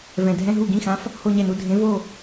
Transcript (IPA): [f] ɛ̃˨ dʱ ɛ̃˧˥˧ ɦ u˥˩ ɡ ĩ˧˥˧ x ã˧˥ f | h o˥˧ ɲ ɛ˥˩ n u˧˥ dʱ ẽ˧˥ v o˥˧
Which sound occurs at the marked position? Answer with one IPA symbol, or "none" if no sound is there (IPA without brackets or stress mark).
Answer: v